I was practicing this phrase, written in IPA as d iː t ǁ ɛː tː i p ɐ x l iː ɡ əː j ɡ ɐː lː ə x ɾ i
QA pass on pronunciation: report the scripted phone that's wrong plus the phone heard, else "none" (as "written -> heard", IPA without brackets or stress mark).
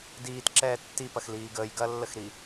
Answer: none